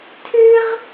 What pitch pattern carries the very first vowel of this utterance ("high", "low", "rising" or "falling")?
high